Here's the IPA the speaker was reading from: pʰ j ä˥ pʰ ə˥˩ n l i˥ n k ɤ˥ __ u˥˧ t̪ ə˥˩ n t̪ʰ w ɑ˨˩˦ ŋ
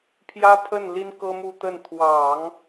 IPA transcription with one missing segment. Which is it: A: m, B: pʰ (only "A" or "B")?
A